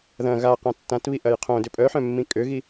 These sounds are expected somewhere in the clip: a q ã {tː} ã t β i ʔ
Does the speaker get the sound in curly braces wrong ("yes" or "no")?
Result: no